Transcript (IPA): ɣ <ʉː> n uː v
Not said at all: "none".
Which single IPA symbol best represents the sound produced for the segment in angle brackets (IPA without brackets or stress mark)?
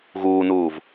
uː